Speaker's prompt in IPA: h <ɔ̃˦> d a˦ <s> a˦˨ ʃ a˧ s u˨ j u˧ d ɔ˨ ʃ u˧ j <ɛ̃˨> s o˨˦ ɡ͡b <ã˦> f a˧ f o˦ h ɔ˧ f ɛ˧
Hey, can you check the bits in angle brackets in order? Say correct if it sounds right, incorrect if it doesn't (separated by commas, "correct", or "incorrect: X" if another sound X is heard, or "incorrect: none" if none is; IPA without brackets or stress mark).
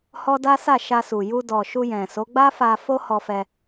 incorrect: ɔ˦, correct, correct, incorrect: a˦